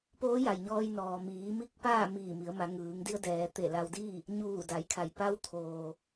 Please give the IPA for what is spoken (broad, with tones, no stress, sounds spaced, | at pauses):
p oː˧˥ j a˩ j ɲ ɔː˧ j n ɔː˩ m iː˩˧ m i˧˥ k̚ p aː˥˨ m iː˧˩ m i˩˧ ə̯ m a˩˧ ŋ ɯː˩˧ ŋ d i˧ ə̯ d ɛː˩˧ t̪ e˧˩ l a˧ w d i˥˨ | ɲ uː˧˩ d a˩˧ j kʰ a˩ j p a˧˥ w t̪ʰ oː˧